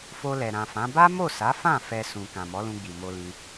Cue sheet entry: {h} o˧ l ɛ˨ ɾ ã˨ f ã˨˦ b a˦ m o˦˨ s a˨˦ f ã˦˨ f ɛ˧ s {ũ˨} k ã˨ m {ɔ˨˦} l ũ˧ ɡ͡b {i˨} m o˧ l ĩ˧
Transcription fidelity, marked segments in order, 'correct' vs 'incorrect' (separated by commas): incorrect, correct, correct, correct